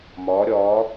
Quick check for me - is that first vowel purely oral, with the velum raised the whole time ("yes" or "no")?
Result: yes